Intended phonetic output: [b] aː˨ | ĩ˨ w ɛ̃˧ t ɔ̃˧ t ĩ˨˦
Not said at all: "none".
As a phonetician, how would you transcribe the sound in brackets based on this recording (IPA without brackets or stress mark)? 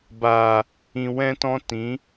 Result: b